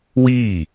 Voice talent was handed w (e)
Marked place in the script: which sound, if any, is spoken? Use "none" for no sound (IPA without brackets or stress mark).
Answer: i